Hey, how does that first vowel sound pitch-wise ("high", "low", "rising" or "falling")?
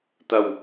low